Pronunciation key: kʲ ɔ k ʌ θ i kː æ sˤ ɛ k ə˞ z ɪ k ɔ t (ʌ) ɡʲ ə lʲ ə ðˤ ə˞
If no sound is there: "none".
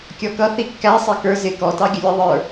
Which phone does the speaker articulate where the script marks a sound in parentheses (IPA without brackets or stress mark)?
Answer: ɑ